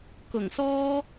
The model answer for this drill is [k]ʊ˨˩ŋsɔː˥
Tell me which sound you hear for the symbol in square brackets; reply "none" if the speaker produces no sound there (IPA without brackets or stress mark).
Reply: k